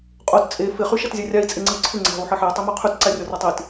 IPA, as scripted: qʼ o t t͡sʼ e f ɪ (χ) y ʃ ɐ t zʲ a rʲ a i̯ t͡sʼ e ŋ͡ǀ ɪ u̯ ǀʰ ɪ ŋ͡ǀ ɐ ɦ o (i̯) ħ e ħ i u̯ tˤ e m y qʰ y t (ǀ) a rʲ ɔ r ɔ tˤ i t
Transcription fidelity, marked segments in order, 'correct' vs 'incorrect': correct, incorrect: u̯, correct

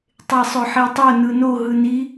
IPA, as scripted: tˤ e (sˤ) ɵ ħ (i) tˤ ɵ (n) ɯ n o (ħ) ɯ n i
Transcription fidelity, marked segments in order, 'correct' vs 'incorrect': correct, correct, correct, incorrect: ɦ

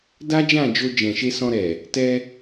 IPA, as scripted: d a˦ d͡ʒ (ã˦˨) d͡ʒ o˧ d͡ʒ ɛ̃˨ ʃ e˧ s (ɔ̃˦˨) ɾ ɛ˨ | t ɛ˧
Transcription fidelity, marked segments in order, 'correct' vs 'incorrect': correct, incorrect: ɔ̃˧

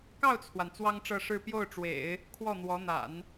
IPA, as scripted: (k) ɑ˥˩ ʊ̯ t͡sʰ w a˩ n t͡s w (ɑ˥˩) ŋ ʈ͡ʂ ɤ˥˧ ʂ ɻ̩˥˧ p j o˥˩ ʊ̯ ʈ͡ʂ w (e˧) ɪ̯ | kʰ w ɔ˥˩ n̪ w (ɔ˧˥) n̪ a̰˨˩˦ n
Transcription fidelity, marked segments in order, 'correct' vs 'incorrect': correct, incorrect: ɑ˥, incorrect: ḛ˨˩˦, correct

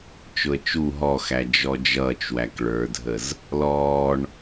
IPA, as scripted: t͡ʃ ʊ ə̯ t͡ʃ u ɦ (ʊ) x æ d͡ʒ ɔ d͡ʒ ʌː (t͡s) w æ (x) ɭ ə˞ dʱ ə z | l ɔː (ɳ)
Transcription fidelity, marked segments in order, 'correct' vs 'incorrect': incorrect: ɔ, incorrect: t͡ʃ, incorrect: k, correct

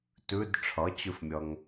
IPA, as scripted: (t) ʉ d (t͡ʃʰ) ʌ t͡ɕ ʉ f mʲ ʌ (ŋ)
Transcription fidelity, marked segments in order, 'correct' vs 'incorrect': correct, incorrect: ʈ͡ʂʰ, correct

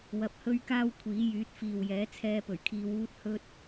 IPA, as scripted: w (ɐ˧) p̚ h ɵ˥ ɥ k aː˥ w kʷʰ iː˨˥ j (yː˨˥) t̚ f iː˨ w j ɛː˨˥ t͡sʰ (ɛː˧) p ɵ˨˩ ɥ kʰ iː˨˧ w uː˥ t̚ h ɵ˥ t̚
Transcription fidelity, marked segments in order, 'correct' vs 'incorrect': correct, correct, correct

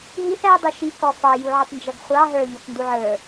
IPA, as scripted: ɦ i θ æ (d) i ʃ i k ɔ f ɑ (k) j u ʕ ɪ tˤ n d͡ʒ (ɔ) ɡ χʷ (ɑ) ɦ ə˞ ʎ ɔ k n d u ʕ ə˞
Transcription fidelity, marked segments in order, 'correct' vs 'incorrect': incorrect: dˤ, incorrect: none, incorrect: ʌ, correct

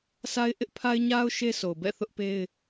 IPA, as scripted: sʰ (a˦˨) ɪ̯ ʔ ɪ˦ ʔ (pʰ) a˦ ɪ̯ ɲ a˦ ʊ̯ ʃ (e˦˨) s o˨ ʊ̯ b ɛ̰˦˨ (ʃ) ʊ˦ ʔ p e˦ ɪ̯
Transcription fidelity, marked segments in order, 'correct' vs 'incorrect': incorrect: a˦, correct, incorrect: e˦, incorrect: θ

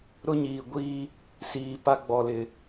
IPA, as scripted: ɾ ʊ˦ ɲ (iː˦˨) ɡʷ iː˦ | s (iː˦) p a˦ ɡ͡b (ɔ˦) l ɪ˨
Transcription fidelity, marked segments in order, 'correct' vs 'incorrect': incorrect: iː˨, incorrect: iː˨, incorrect: ɔ˨

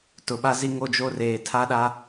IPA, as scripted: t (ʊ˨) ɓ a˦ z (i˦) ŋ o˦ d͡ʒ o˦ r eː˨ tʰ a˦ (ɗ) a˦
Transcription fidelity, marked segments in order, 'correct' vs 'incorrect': correct, correct, correct

